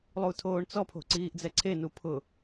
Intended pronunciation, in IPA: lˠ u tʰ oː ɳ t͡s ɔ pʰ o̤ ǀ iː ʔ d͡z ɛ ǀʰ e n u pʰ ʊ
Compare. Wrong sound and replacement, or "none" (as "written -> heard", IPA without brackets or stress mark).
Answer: none